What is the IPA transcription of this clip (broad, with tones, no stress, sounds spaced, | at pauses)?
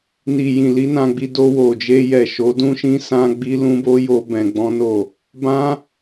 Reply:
n i˨ j ĩ˨ l i˨˦ n ã˧ ɡ͡b i˧ d o˧ w o˨ d͡ʒ e˧ j ɛ˨ ʃ o˨˦ d ũ˦ ʃ ĩ˦ s ã˦ ɡ͡b i˦ l ũ˦ b o˦ j o˦ b ɛ̃˧ ɡ͡b ɔ̃˦ n o˦˨ | b ã˦